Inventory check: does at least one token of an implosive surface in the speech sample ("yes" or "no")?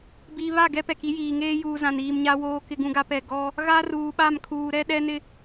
yes